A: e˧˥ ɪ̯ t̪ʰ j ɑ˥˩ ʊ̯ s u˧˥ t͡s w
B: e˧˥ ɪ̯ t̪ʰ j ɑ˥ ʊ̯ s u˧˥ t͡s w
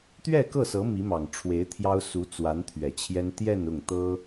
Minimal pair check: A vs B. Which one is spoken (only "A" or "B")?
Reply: B